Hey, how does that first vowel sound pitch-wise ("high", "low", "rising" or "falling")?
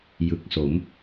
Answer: low